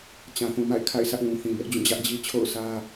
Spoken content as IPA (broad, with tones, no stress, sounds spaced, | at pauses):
t͡ɕ ã˨ θ ũ˨ m a̰˦˨ ɪ̯ kʰ a̰˦˨ ɪ̯ sʰ ä˦ ʔ w ũ˨ θ ĩ˨ b ɛ˦ ʔ d͡ʑ ũ˦˨ d͡ʑ ä˦ ʔ d͡ʑ i˦ t͡ɕʰ o̰˦˨ ʊ̯ sʰ ä˦